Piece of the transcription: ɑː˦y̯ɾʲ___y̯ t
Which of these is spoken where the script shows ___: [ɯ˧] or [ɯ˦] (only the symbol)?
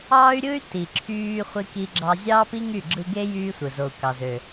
ɯ˦